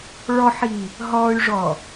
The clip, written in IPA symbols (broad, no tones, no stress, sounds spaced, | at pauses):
ɭ ɔ ħ i | ɦ ɔ y̯ ʐ ɔ